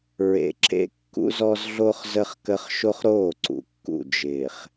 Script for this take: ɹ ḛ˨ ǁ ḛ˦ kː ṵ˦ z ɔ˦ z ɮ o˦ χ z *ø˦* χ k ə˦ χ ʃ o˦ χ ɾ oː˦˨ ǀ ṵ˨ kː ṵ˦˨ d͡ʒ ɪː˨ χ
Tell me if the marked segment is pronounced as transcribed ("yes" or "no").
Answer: no